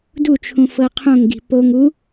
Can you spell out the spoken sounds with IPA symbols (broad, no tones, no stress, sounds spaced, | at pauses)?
d u t͡ʃʰ ũ f ɤ qʰ õ ŋ ɡ i̤ p o ŋ u